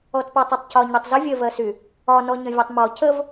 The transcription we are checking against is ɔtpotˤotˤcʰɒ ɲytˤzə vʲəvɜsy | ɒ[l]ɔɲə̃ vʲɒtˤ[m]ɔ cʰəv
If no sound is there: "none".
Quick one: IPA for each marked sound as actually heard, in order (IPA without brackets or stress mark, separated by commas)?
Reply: n, m